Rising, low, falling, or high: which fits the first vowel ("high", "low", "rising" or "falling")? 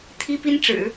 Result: high